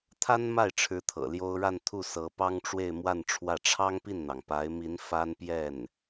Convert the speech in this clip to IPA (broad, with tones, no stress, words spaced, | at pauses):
t̪ʰa˥nma˥˩ɪ̯ʈ͡ʂʰɻ̩˧˥ t̪ʰɤ̰˨˩ljo˥ʊ̯ ɻa˥˧nt̪ʰu˥˩sɤ˧˥ pɑ˥ŋʈ͡ʂwe˥˧ɪ̯ mwa˥˧nʈ͡ʂʰwä˥˩ ʈ͡ʂʰɑ˥ŋpi˥˩nn̪ɑ˩ŋ pa˧˥ɪ̯mi˧˥n fa˥n pjɛ˥˩n